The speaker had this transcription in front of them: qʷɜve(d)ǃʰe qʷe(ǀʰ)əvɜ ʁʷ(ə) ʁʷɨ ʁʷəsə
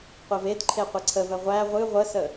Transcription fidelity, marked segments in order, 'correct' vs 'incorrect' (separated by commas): correct, correct, incorrect